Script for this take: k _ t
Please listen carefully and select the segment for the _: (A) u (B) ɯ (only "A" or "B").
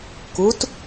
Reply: A